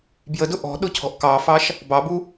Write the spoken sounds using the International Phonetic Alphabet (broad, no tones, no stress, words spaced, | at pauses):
bjədʊ ʔɔ̤ɗʊ cʰɔ̤ʔkɑfɑʃ | bɑbu